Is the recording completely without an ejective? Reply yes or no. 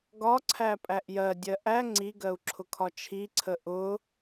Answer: no